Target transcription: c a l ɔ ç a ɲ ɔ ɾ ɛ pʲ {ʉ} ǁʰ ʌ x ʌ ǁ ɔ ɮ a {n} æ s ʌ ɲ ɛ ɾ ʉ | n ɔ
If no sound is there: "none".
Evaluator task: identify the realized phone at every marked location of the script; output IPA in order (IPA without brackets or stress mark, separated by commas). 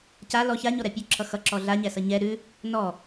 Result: ʉ, ɲ